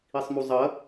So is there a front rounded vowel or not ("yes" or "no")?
no